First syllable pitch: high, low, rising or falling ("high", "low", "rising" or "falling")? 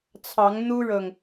rising